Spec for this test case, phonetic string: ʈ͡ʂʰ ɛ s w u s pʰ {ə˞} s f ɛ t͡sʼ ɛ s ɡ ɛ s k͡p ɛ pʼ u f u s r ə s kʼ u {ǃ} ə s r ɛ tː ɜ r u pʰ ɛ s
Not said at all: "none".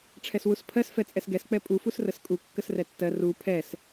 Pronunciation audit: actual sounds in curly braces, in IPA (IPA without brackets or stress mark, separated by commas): ɜ, kː